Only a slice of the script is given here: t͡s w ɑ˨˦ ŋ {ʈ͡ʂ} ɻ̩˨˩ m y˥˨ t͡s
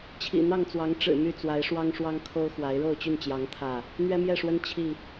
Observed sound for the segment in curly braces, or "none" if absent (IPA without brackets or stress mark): ʈ͡ʂ